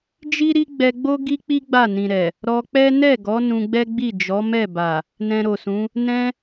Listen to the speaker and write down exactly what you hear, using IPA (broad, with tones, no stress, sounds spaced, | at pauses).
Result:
d͡ʒ i˦ ɾ i˦ ɡ͡b ɛ˧ ɡ͡b o˦ ɡ i˦ k͡p i˦ ɡ͡b a˦˨ n ĩ˨ ɾ ɛ˨ | ɾ ɔ˧ k͡p ɛ˦ n ɛ˦˨ ɡ ɔ˨˦ n ũ˧ ɡ͡b ɛ˦ ɡ͡b i˦˨ d͡ʒ ɔ˨˦ m ɛ˦˨ b a˨ | n ɛ̃˧ ɾ o˨ s ũ˨˦ | n ɛ̃˧